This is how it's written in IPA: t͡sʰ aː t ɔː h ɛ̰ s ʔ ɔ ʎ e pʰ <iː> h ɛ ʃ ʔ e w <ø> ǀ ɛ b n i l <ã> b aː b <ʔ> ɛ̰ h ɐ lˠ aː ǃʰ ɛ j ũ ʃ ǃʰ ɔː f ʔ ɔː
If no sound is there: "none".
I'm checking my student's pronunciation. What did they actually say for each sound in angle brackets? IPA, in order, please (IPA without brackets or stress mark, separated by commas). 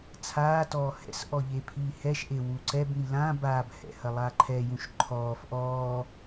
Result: iː, u, ã, h